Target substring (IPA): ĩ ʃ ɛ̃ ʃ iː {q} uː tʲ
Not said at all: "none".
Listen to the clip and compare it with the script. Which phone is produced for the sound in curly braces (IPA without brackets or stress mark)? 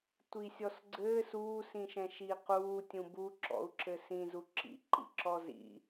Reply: q